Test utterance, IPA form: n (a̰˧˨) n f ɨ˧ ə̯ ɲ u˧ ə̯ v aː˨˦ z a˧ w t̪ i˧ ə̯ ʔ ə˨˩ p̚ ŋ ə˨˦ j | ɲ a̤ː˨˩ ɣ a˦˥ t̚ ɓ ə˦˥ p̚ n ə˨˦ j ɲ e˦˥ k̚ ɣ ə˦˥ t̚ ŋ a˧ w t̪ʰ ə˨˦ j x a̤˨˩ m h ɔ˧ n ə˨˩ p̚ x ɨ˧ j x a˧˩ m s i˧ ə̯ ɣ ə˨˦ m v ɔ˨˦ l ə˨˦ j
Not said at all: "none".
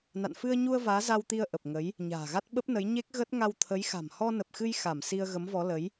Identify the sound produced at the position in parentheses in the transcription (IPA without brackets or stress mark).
a̰˧˨